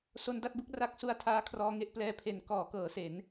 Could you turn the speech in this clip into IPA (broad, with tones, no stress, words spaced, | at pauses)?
so˧nda˥˩t̚bu˥˩k̚ra˦˥k̚ su˧a̯tʰaː˦˥ kʰrɔː˦˥ŋe˥˩ʔ plɛː˧pʰe˨˩nkɔː˩˦kɤː˩˦ se˩˦n